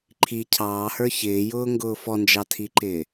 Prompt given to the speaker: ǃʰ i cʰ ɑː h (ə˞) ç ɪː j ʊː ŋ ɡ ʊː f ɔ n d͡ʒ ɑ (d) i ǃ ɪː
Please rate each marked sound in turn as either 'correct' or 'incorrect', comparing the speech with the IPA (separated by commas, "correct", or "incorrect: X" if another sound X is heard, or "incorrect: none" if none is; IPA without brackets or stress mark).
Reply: correct, incorrect: tʰ